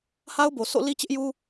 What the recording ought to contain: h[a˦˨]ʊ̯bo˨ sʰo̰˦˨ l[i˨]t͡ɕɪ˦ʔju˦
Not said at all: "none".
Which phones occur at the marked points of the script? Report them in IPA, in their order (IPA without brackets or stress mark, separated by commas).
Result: a˦, i˦